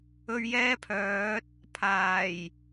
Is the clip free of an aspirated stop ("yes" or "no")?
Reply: no